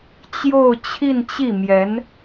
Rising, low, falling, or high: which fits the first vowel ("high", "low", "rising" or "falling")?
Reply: falling